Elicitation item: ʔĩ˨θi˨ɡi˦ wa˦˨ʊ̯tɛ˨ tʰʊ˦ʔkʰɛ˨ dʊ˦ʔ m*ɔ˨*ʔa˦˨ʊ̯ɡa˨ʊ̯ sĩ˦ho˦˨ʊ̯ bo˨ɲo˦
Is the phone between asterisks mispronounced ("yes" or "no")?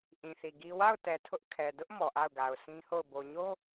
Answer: no